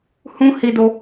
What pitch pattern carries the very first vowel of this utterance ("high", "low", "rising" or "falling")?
high